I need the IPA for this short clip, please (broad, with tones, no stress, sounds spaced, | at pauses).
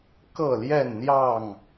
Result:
k ɤ˥˨ l j ɛ˥˨ n n̪ j ɑ˥˨ ŋ